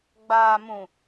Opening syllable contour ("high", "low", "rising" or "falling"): low